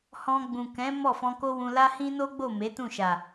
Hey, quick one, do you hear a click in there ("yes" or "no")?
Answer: no